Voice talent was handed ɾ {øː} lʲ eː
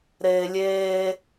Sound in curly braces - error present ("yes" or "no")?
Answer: yes